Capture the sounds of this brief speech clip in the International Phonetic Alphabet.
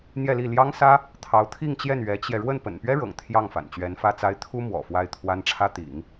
n̪jɛ˥˧li˥˩ ljɑ˥ŋsä˥ | t̪ʰɑ˧˥ʊ̯t̪ʰi˥˧ŋt͡ɕjɛ˥˩n ɥɛ˧˥t͡ɕjɛ˧ ɻwə˥˩npə̰˨˩npɥɛ˥ɻɤ̰˨˩ŋ t̪ʰjɑ˥˩ŋ fa̰˨˩nt͡ɕɥɛ˧˥nfä˥t͡sa˥ɪ̯ t̪ʰu˥ mwɔ̰˨˩fwa˥˩ɪ̯t̪ʰwa˥n ʈ͡ʂʰä˥t̪ḭ˨˩˦ŋ

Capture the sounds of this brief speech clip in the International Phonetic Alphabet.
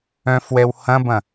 œ̃fwɛw hɐ̃bɐ̃

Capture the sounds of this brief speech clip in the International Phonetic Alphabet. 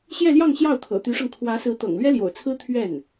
ɕjɛ˥˧ljɑ˥˧ŋ ɕjɑ˥˩ʊ̯t̪ʰɤ̰˨˩t̪y˧˥ʂɤ˧ŋ kʰwä˧˥sɹ̩˧˥t̪ɤ̰˨˩ŋ lɥɛ˥ljo̰˨˩ʊ̯t͡sʰɹ̩˥ t̪ʰɥɛ˥˩n

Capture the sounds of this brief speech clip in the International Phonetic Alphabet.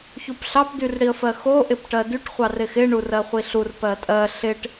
çupɬɑp dyrɽiə̯fɜxo ʔɪpʈɜdyʈ χʷɑrɪxɪ ɳurɜχʷiɬur pɜtʼɜ ɬɪʈ

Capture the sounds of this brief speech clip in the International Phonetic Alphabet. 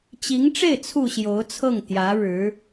t͡ɕi˧˥ŋʈ͡ʂe˥˩ɪ̯ t͡sʰu˨˩ ɕjo˧˥ʊ̯t͡sʰɤ˥˩ŋ t̪jä˧˥ɻɻ̩˧˥

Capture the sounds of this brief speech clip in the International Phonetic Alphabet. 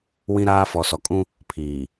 wĩ˦ɾaː˦ fɔ˨sɔ˨kʼũ˦ | pʰiː˨

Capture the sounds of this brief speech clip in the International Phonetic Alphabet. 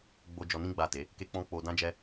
ɡ͡bo˧ d͡ʒɔ˧nĩ˦ɡ͡ba˦˨te˨˦ | ke˧k͡pɔ̃˧ k͡po˧dã˦d͡ʒɛ˦

